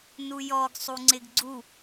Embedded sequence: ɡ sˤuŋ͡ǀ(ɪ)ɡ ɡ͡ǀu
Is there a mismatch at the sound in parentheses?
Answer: no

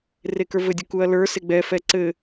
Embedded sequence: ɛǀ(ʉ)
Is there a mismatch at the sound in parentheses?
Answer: yes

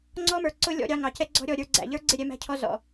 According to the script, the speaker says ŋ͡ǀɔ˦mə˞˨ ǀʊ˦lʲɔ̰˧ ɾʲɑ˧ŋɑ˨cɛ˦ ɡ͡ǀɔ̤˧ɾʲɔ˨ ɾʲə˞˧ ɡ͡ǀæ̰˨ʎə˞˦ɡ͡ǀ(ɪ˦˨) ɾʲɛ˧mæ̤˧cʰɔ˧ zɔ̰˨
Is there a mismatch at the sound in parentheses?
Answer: no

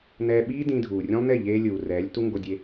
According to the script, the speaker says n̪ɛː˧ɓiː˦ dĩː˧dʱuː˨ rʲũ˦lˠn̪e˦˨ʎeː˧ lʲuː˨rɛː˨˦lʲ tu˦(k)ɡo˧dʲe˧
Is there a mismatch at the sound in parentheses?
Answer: yes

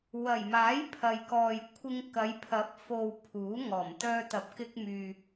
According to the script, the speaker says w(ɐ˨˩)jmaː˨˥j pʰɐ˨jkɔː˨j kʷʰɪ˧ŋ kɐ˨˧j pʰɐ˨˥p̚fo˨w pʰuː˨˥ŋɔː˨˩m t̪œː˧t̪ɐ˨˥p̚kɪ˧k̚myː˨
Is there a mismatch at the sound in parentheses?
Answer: no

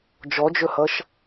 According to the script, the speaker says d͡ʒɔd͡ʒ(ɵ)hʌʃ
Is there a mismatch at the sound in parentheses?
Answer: no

